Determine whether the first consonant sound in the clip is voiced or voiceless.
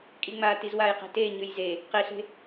voiceless